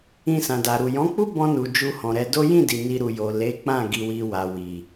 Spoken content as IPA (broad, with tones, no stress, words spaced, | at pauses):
ĩ˧sã˨da˨ɾu˨ jɔ̃˨˦k͡pu˦bɔ̃˧nu˨ d͡ʒu˧hɔ̃˨ɾɛ˧do˦ jĩ˦˨di˨ ni˧ɾu˨jo˨ le˨˦k͡pã˦˨ ɡi˧wi˧wa˨ wi˨